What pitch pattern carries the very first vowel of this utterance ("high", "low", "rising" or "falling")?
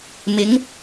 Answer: rising